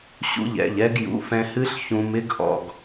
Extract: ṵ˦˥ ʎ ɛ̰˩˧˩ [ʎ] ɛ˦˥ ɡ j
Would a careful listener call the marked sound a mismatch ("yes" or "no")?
no